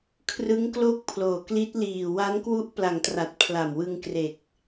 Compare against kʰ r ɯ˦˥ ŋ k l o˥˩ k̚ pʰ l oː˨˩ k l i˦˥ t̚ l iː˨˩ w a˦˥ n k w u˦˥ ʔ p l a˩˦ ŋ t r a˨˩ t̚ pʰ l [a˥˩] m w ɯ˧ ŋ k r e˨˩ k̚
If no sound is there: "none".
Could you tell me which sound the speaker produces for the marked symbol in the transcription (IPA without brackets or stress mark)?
a˨˩